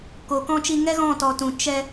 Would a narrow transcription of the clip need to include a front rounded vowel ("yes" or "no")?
no